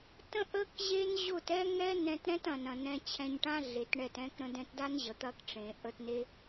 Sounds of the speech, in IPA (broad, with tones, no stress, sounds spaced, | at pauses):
t ə̃˦ ʔ ə˦ k ʑ e˦ n ʑ ʊ˦˨ t ɛ˦ ŋ ɛ˦ n ɛ̃˧ t ɾ ɛ̃˦ t ɐ̃˨ n ɐ̃˨ n ɛ̃˧ t͡ɕʰ ɛ̃˧ ɲ ʈ ã˦ ɮ e˨˦ t ɳ ɛ˦˨ t ɛ̃˧ k ɾ ə̃˧ d ɛ̃˧ t d a˦ n ʑ ə˨ t̪ ɐ˦˨ k ʈ͡ʂ ẽ˨ ʔ ə˧ t n e˦